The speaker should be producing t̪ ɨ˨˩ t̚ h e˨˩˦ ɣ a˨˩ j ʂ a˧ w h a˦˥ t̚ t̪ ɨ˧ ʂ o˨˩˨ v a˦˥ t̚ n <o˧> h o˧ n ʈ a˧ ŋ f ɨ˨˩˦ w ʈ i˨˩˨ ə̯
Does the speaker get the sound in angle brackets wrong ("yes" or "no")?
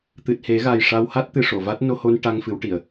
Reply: no